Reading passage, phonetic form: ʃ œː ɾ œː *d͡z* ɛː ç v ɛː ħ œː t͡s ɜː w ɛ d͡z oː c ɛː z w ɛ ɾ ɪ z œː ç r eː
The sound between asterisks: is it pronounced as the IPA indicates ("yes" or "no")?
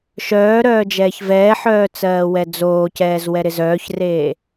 no